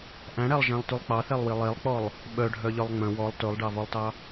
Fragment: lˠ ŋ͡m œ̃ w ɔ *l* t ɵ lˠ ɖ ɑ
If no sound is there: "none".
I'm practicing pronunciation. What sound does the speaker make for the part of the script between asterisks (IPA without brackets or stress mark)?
lˠ